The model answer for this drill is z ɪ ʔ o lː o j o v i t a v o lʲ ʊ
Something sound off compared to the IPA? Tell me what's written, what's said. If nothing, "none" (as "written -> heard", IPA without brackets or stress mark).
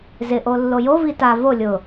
none